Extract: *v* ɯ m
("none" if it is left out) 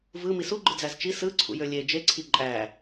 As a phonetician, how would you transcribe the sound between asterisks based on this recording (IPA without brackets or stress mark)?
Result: v